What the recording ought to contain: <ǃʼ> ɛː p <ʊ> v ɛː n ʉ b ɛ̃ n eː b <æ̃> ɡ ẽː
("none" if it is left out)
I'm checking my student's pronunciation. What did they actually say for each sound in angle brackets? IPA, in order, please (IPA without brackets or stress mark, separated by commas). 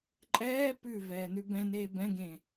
ǃʼ, ʉ, ɛ̃